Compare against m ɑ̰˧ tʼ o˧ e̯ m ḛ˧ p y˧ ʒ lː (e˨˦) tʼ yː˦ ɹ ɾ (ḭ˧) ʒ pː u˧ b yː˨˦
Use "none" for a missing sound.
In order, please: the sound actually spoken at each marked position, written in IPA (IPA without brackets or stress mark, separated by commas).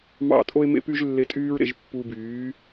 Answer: e˧, ḛ˧